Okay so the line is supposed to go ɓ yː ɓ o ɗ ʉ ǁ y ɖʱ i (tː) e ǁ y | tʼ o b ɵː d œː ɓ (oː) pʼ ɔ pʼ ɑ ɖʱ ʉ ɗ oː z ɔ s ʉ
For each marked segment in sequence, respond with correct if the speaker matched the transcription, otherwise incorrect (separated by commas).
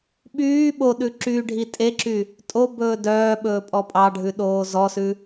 incorrect, incorrect